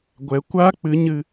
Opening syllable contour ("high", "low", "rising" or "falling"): rising